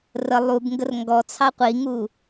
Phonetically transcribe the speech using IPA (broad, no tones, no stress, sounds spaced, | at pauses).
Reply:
r ə lˠ u b ŋ ɡ ə r ŋ ɡ ɔ t͡sʰ ɑ qʷ i ŋ u